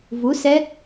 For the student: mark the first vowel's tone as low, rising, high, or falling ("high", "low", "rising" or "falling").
rising